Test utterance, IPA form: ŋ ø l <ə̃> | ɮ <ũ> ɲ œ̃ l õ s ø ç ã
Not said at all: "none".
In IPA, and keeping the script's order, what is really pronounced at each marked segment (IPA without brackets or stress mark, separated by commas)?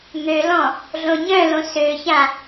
ɔ̃, õ